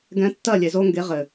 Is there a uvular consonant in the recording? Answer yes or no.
yes